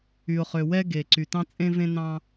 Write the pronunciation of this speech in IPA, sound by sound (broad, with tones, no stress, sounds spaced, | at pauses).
y˩ ʊ̯ χ ø˩ w ɛ˧ ɡ e˩ ǀ y˩ t ɑ̃˧ t͡sʼ ẽ˧ v ẽ˧ n ɑ̃˧